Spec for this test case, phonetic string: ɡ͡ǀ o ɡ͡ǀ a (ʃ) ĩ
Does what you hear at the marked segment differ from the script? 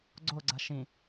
no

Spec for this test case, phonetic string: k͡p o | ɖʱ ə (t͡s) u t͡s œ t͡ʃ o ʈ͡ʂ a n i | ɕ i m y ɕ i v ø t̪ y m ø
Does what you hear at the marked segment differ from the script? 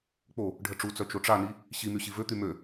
yes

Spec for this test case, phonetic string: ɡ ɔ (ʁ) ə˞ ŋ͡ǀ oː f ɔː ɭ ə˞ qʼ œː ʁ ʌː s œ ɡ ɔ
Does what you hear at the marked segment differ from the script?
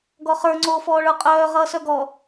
yes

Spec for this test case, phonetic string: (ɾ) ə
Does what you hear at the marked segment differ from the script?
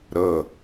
no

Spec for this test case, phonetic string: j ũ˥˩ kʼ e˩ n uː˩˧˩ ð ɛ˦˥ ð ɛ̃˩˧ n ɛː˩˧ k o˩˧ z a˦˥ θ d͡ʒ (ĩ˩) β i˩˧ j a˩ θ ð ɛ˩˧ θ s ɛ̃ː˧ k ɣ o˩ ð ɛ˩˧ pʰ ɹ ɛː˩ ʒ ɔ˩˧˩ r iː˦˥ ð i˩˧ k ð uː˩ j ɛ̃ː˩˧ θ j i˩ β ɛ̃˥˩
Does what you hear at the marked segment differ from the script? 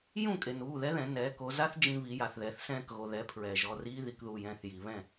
yes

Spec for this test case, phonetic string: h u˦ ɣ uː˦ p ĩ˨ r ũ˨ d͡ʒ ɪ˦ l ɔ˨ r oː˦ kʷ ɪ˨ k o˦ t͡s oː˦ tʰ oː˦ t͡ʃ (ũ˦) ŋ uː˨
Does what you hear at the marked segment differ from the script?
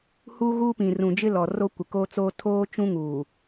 no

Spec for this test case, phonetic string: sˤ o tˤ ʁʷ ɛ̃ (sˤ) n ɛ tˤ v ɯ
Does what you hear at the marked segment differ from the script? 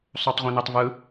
yes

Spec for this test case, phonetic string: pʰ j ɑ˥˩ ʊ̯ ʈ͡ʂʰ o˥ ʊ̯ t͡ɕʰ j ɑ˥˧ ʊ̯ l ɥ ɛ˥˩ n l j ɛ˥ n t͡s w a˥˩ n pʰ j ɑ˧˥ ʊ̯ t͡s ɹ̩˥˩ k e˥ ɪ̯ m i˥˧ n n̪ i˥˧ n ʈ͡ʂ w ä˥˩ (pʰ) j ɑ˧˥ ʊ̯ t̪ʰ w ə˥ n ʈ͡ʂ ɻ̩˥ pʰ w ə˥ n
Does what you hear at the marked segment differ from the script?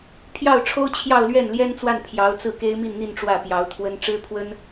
yes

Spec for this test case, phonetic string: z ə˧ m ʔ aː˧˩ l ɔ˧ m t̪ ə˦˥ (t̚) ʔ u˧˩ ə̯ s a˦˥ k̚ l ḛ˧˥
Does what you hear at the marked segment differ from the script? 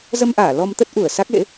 no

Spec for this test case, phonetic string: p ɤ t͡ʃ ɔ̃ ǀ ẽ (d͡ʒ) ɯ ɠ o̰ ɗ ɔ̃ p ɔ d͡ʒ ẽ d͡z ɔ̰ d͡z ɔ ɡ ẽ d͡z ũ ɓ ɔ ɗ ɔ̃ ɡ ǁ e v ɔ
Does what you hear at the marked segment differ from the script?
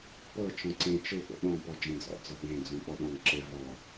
yes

